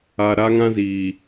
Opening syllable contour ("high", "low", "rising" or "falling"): low